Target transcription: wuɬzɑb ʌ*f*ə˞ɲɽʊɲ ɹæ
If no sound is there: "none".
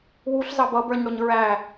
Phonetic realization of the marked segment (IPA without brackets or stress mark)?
b